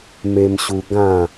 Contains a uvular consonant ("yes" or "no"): no